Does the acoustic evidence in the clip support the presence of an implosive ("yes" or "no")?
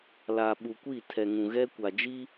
yes